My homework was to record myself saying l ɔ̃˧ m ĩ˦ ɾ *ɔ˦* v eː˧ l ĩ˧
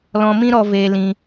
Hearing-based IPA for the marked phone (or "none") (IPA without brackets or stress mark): ɔ˧